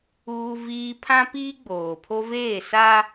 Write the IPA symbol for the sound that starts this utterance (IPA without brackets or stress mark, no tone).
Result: uː